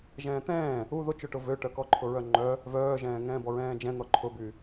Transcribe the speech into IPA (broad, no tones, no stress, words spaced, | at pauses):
ʒɛ̃ːt̪ɛ̃ː | u ðot͡ʃøʈʊ vøʈœ kɔǃʰʊɹœŋ͡ǃœ | vœːʒɛ̃ːŋɛ̃ː bɔɹɛ̃ːd͡ʒɛ̃n̪ɔ ǃʰʊby